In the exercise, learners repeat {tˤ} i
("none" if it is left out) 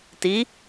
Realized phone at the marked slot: t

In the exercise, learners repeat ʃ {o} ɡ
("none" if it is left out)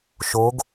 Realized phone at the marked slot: o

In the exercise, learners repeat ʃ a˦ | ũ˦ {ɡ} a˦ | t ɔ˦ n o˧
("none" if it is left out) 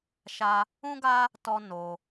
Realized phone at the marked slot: ɡ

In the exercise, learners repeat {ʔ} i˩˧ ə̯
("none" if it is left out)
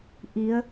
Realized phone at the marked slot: ʔ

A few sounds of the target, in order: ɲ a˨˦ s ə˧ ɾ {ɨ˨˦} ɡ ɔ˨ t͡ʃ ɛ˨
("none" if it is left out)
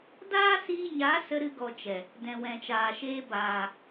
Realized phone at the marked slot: ɨ˧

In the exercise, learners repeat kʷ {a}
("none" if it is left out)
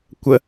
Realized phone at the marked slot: ə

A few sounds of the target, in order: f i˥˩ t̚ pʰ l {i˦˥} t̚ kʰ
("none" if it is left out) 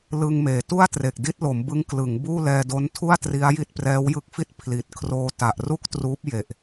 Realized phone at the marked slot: i˨˩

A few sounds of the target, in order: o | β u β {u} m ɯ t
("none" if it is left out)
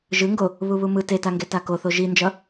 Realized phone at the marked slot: u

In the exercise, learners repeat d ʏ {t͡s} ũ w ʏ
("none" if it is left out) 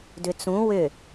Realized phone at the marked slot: t͡s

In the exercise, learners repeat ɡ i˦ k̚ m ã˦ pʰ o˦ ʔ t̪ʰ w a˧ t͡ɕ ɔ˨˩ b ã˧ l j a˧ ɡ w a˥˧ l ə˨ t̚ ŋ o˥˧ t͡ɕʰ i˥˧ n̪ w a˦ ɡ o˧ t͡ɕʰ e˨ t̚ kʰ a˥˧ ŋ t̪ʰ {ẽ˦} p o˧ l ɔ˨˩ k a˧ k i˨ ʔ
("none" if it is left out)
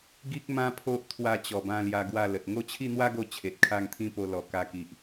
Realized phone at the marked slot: ĩ˦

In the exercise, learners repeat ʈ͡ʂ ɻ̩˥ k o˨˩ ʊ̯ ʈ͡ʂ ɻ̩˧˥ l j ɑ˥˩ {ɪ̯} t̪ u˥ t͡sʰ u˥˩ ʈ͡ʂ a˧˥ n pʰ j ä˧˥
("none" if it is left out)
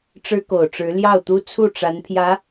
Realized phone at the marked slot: ʊ̯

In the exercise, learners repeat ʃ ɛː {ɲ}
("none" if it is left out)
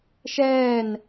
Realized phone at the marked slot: n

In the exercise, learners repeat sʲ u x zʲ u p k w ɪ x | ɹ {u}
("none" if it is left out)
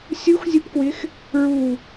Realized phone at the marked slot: u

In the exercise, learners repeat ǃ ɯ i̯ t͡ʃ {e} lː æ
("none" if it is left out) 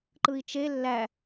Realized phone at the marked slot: e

